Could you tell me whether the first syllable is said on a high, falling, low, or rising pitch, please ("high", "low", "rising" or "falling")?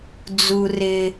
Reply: low